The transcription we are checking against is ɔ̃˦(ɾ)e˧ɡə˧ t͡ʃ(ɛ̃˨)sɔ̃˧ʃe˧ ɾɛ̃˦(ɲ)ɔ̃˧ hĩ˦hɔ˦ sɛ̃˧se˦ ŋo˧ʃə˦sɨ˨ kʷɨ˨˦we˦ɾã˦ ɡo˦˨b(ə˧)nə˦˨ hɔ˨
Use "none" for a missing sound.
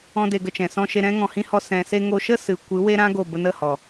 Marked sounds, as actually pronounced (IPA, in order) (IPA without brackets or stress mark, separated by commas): d, ɛ̃˨, ŋ, ə˧